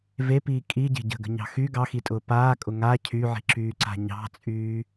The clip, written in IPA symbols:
v e p iː kʼ i ɟ e̤ ɟ ə̤ ɡ ə̤ ɲ ɑ̤ x y ɡ ɑ x i tʼ ʊː p aː kʼ ʊ ŋ a cʰ y ʕ i̤ ǁ yː ǀ a̤ ɲ ɑ̤ t͡sʼ yː

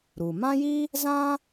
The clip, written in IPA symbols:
ɾ u˩ m ã˥ j i˥ | z ã˥

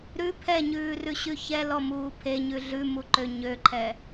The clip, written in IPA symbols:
ɾ ʉ pʰ ɛ ɲ ʉː r ʉ ɕ ʉ ç ɛ l ɔ m uː pʰ e ɲ ʉ ɮ ʉ m u ǃ ø ɲ ø ǃʰ ɛ

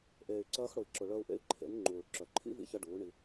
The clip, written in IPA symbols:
ʔ eː˨ y̯ ǀ ɐː˧ x ɽ ʊ˨ i̯ ǁ ʊ˨ ɭ œ˧ u̯ ʔ ḛ˧ i̯ ǃʰ ḛ˨˦ n ŋ͡ǃ uː˨ ɭ ǁ œ˨ ǃʰ ḭ˦ v ḭ˧ ç ɐ˧ ɖ uː˨˦ ɳ i˧

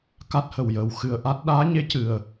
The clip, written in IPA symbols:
k a˦˥ t̚ h ə˨˩ w j əː˨˩ w x ɨ˨˩ ə̯ ʔ a˦˥ t̚ ɗ aː˧˥ ɲ e˧˥ c ɨ˨˩ ə̯

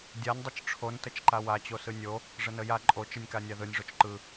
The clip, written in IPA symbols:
dʲ a nʲ dˤ ɯ t͡ʃ ʈ͡ʂʰ o n t ə t͡ʃ ǃ a w a t͡ɕ o s ɯ nʲ o | ʐ ə n ə j a ǃʼ o t͡ʃ ɯ nʲ k a nʲ a ð ɯ nʲ ʐ o t͡ʃ ǃ ɯ

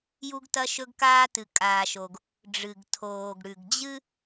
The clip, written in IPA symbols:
j u˥ ɡ t ɐ˥ ʃ ɵ˥ ɡ k aː˥ t ɨ˩ kʼ aː˩ ʃ o˩ ɡ | ɖ͡ʐ ɨ˩ ɡ tʰ oː˩ ɡ ɽ ʉ˩ ɡ d͡ʑ ɨ˥

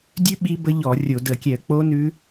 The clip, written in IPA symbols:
dʲ ʉ˦˥ ɓ i˦˥ b ə˦˥ ʎ ɔ˧˩˧ rʲ o˧˩˧ d ə˧˩˧ kʲ ɛ˧˩˧ ə̯ k͡p o˦˥ n ʉ˦˥

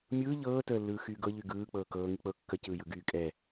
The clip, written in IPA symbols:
mʲ ɯː ʎ ɤː t əː lː ɯː x yː ɡ ɤ ʎ y ɡ ɯː k͡p ɤː k ɤː ŋ i k͡p ɤ kː ə c ɯː j ɯ ɡ yː kʼ ɛ

